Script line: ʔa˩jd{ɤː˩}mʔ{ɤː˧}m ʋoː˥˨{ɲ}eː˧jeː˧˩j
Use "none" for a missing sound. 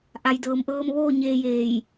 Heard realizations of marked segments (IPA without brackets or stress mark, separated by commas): ɤː˩, ɤː˧, ɲ